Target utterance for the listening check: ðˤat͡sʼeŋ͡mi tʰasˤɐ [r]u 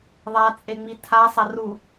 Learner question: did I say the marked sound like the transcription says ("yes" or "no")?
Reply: yes